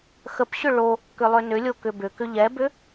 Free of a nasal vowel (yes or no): yes